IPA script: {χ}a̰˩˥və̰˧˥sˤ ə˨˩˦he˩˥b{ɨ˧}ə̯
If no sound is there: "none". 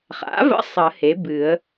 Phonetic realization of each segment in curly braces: χ, ɨ˨˩˦

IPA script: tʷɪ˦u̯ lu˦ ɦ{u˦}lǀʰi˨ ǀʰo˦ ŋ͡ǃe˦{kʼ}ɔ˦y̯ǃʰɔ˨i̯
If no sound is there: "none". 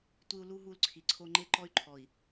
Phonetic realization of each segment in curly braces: u˦, ǃ

